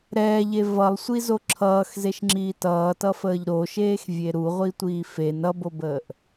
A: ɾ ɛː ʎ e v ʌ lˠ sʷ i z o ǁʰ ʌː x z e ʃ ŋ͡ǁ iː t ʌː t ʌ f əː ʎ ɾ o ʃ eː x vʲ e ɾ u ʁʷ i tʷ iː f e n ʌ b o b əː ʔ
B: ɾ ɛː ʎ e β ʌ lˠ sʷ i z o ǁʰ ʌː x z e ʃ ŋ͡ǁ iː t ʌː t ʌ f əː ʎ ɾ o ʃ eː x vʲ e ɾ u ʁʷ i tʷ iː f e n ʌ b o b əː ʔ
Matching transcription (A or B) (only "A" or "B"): A